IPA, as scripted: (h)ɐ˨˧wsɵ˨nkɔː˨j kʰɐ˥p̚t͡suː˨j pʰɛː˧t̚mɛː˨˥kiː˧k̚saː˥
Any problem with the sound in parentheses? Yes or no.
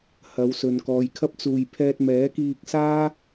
no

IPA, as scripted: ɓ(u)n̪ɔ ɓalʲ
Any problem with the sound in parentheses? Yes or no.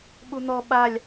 no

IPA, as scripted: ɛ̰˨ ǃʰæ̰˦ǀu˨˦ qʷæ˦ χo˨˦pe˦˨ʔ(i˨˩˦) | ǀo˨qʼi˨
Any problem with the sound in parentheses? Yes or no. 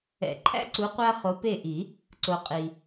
no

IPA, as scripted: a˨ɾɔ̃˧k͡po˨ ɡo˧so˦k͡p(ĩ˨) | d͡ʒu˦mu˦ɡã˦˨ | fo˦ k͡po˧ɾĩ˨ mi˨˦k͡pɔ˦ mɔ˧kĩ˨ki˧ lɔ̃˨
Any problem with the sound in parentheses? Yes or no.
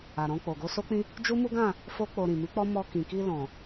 yes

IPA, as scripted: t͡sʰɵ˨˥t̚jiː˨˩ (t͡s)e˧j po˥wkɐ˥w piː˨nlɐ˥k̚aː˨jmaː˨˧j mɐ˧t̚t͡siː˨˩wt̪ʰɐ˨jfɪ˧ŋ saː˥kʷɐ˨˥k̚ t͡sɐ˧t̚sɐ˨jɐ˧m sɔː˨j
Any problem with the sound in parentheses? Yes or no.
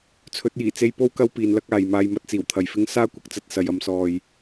no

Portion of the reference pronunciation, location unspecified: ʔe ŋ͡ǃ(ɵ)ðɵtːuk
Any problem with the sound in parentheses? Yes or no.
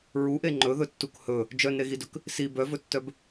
no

